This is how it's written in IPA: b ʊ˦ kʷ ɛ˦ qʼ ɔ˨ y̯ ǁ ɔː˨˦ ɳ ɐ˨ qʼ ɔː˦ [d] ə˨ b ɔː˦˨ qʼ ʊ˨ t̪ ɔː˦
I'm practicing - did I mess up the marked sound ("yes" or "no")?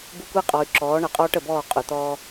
yes